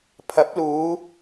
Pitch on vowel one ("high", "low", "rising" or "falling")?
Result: rising